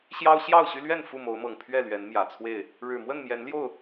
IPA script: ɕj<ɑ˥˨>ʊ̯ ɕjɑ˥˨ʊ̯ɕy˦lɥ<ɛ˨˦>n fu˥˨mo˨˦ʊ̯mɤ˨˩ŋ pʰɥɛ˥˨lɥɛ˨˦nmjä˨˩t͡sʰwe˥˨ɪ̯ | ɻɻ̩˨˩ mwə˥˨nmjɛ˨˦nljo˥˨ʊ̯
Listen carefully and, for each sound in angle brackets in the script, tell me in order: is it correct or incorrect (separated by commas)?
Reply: incorrect, incorrect